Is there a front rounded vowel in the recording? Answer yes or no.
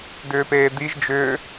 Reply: yes